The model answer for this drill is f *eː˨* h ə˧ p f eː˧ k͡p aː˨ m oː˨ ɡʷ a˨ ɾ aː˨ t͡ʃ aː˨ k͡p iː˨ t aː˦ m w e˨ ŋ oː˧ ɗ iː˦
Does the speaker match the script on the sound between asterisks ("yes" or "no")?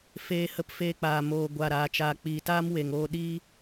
no